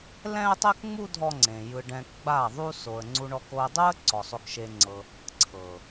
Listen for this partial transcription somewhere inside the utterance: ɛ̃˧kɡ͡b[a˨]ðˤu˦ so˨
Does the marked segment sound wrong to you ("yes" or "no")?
yes